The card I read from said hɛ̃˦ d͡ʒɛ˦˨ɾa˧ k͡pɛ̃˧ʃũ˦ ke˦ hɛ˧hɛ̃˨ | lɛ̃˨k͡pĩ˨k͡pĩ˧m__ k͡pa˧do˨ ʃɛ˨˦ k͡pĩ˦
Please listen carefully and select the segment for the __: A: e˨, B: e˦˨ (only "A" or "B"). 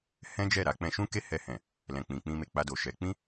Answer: A